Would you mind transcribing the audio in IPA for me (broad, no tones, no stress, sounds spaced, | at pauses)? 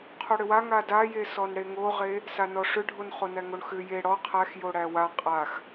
qʰ o ɽ ʏ w a ŋ a d a j e s ɔ n ɽ e ŋ o ʁ e | s a n ɔ ʂ ʏ ɖʱ o n χ o n æ ŋ o ɳ x ʏ j e ɽ ɔ qʰ æ x j o ɽ æ w a qʼ a x